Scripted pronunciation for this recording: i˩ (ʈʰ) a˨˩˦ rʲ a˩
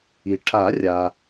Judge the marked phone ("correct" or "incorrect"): correct